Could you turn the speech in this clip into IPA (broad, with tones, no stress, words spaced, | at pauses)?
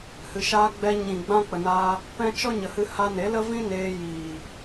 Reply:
hɨ˨ʃaː˧ɡ͡bɛ˧ ɲĩ˨ɡ͡bã˧k͡pə˨naː˧ | pɛ̃˧ t͡ʃɔ˦ɲə˨hɨ˧ ha˧ne˨˦ lə˦vĩ˦ neː˧ jiː˨